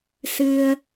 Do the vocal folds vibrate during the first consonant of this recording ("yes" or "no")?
no